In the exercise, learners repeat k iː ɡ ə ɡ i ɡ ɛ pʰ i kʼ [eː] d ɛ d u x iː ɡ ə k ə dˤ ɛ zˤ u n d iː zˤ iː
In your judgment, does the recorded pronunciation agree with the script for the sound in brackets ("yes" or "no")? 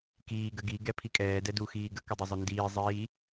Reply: no